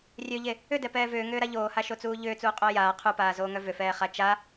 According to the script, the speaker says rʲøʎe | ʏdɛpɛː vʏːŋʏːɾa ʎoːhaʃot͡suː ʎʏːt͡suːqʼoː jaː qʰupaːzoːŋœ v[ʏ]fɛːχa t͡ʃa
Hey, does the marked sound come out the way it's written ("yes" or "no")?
yes